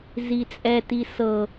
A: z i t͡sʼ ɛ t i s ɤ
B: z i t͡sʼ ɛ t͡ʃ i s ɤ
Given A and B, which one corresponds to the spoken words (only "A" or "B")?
A